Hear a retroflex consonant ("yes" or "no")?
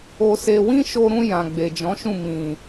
no